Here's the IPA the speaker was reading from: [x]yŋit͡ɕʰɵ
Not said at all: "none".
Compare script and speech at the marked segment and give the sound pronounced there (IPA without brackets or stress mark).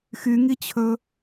x